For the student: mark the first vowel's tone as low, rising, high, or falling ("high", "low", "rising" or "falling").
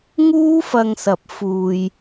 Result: high